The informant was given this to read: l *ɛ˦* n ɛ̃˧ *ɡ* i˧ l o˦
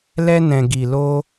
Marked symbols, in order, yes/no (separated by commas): yes, yes